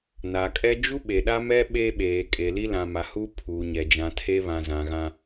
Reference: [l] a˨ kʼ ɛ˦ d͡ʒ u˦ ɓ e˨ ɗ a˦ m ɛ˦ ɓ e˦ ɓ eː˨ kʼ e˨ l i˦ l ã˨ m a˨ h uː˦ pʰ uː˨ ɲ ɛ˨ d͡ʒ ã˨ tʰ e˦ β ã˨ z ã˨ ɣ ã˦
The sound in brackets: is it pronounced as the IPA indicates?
no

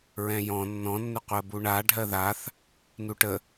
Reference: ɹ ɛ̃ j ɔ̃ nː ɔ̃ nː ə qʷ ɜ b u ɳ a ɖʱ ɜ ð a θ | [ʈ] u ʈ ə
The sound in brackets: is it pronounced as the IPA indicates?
no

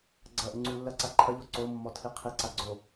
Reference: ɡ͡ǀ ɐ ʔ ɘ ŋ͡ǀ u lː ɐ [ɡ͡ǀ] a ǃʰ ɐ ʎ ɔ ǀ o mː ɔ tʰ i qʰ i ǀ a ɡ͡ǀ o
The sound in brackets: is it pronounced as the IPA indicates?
no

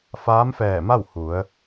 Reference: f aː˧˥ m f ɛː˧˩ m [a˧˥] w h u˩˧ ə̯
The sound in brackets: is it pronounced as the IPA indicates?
no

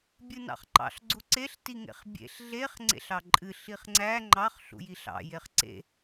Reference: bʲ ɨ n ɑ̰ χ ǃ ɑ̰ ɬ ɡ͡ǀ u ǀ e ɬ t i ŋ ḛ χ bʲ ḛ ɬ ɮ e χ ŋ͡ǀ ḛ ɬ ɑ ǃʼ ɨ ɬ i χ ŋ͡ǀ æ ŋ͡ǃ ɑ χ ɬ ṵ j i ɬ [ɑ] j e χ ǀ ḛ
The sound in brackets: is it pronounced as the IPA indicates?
no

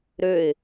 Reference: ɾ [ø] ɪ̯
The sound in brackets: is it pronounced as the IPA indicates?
yes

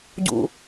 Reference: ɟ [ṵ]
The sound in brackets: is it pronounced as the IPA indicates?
yes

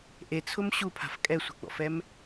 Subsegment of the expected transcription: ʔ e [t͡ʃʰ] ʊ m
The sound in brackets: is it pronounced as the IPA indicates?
no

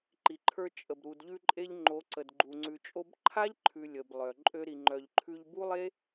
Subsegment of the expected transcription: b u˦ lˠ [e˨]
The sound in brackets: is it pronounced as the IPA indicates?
no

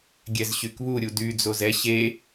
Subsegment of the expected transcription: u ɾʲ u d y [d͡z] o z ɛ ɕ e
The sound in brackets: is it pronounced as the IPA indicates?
yes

